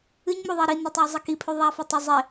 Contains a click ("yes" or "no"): no